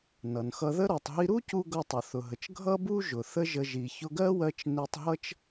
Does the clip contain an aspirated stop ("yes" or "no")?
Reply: no